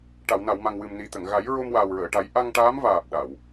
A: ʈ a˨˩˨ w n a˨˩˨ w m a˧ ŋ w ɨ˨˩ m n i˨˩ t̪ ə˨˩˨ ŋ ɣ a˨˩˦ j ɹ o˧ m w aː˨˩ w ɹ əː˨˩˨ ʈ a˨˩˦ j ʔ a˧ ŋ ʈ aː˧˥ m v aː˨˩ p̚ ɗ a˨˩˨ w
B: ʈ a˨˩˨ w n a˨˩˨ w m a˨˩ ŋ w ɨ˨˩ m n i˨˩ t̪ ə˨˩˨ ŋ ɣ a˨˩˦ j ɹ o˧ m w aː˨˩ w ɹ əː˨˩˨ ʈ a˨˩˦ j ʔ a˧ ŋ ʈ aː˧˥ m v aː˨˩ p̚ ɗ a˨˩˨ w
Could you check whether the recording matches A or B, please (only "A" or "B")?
B